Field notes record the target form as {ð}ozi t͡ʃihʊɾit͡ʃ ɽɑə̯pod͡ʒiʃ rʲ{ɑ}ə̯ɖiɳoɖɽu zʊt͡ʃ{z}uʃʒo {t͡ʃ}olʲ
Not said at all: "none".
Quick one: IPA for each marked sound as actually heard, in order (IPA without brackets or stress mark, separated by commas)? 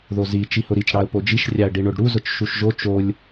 ð, ɑ, ʃ, t͡ʃ